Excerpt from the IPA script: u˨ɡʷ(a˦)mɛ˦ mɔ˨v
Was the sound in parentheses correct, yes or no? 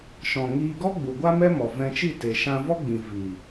yes